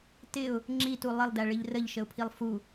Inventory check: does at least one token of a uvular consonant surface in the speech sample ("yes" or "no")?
no